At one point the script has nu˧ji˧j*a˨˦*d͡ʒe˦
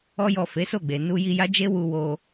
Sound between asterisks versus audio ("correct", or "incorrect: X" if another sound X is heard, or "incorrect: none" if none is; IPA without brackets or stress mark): incorrect: a˦